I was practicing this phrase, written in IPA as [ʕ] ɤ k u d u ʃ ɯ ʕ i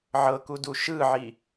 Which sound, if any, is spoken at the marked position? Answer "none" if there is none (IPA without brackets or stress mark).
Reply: ʕ